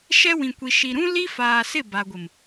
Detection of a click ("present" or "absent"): absent